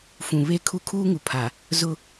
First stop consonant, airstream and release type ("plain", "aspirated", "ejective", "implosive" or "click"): aspirated